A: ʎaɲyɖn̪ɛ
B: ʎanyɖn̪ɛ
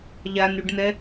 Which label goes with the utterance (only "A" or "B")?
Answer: B